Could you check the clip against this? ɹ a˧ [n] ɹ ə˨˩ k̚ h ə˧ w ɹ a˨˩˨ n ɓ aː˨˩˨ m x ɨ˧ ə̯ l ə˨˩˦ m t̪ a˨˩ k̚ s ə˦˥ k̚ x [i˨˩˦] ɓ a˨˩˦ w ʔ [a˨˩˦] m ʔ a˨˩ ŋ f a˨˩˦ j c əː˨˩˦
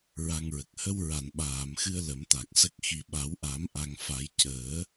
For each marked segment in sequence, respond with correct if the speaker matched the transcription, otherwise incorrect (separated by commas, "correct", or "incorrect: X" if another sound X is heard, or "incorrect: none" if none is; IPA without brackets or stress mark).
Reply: incorrect: ŋ, incorrect: i˨˩, correct